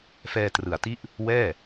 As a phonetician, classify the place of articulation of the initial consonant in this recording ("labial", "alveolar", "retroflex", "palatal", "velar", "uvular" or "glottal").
labial